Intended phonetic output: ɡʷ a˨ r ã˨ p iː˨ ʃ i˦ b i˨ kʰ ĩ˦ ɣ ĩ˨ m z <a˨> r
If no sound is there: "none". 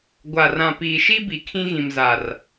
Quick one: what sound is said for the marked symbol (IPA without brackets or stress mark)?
a˨